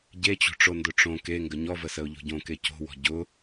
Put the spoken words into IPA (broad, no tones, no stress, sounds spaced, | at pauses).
ɟ e t͡ɕ o̤ ʈ͡ʂ o n d ʊ ʈ͡ʂ õ k e ŋ ɡ ə ɲ ɔ v ə s ə ʊ̯ ʎ o̤ ɟ õ k e c o̤ w ɔ̤ ɟ ʊ